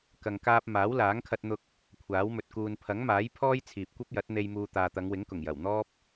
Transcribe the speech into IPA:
kɐ˨ŋkaː˧p̚ maː˨˥wlaː˨˥ŋkʰɐ˧t̚n̪ʊ˧k̚ | kʷʰaː˨˥wmɵ˨t̚ kuː˨npʰɐ˨˥ŋmaː˨˥j pʰɔː˥jt͡sʰiː˨p̚kʷɐ˥p̚jɐ˨˥t̚ n̪e˧j muː˧ t̪aː˨t̪ɐ˨˧ŋwɪ˨˥ŋkʊ˨˩ŋ jɐ˨˩wn̪ɔː˥p̚

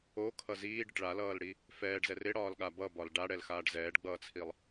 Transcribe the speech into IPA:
okʰʌ ziːɖɪʈ ɭalʌːlɽi | fɛːɖzɛr ɪɽɒːlɠa bʌbɒl ɖaɽɛlxaːɖ zɛːɖɡ͡bʌːt͡sʰilˠ

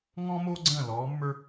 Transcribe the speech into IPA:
ŋɔ̃˥mo˥ ɡ͡ǀə̃ː˥˨lɔː˧˥ mːə˞˥

